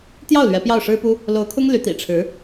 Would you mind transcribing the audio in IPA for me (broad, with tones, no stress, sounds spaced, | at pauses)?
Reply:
t̪ j ɑ˥˩ ʊ̯ l ɥ ɛ˧˥ p j ɑ˥˩ ʊ̯ ʂ ɻ̩˥ p u˥ | l o˧˥ ʊ̯ kʰ ʊ˥ ŋ l y˧˥ t̪ ḭ˨˩ ʈ͡ʂʰ ɻ̩˧˥